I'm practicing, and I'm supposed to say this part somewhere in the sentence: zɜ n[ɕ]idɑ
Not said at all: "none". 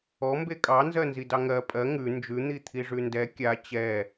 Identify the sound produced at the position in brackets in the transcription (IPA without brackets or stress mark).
z